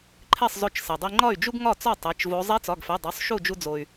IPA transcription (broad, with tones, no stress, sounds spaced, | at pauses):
ǃʰ e˥˨ sˤ z o˧ t͡ʃ s e˩ dˤ i˧ ŋ͡ǃ ɒ˥˨ y̯ d͡ʒ u˥ ɡ ŋ ɒ˥˨ t͡s ɒ˥˨ tˤ e˩˧˩ t͡ʃ v o˧˥ zˤ e˧˥ t͡s ɒ˩˧˩ ɡ f e˩˧˩ dˤ o˩˧˩ sˤ ʃ u˥˨ d͡ʒ u˧ d͡z o˩ y̯